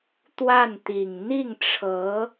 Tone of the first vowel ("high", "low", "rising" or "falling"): falling